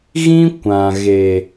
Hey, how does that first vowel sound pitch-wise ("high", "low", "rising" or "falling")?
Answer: high